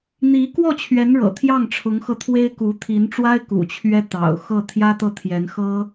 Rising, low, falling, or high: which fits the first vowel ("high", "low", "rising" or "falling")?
rising